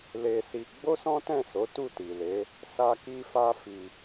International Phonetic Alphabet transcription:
l e˧ s i˧ ɡ͡b o˦ s ɔ̃˦ t ɛ̃˦˨ s o˨˦ t u˦˨ t i˨ l e˨˦ | s a˦ k i˦ f a˦ f i˧

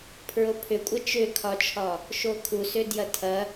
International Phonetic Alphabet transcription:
pʰ ɹ o pʰ ʏ kʷʼ ɐ t͡ʃ ʏ kʰ ɒ t͡ʃʰ ɒ | ʃ o kʰ u s ʏ d j ɐ tʰ ɐ

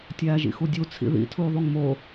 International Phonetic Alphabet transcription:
tʲ æː ʒ ḭ x u dʲ u t͡sʰ ḭ ð ḭ tʰ uː ðˤ u ŋ m o

